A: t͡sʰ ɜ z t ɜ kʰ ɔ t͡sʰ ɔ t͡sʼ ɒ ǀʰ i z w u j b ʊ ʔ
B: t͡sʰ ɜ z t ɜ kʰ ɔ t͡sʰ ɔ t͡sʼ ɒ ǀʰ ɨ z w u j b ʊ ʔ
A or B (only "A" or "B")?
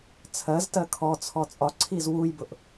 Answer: A